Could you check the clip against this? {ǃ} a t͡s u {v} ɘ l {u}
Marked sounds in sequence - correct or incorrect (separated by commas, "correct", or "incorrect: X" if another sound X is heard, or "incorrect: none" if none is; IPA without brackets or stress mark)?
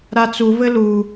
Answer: incorrect: ɾ, correct, correct